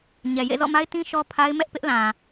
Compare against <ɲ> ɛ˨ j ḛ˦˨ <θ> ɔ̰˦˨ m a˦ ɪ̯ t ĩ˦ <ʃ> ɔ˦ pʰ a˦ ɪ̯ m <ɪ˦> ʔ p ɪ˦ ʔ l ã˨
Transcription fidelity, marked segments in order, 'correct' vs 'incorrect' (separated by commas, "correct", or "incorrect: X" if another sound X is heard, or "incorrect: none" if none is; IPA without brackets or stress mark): correct, incorrect: z, correct, incorrect: ɛ˦